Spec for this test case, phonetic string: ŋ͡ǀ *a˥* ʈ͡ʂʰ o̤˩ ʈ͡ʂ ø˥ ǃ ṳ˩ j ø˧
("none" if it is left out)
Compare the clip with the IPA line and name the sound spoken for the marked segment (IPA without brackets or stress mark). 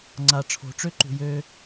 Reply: a˩